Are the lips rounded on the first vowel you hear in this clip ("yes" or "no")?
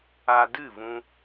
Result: no